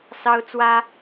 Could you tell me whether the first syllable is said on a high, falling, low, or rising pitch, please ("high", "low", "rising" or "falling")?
high